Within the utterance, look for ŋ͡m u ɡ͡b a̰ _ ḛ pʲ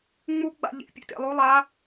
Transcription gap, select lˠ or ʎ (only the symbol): ʎ